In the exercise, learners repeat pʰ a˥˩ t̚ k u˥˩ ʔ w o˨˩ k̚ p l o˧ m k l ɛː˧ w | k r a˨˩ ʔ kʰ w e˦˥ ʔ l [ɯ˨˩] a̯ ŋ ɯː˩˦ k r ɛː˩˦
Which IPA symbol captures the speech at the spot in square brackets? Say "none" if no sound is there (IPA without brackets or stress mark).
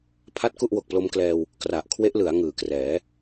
ɯ˩˦